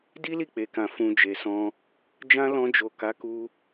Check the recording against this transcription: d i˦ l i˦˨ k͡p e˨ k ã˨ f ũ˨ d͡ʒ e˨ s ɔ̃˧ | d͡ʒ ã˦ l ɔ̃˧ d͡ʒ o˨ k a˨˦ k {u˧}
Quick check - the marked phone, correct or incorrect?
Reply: correct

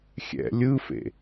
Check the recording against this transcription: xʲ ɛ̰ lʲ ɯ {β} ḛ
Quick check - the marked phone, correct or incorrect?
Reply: incorrect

